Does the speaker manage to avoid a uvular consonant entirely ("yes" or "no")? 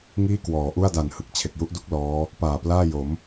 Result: yes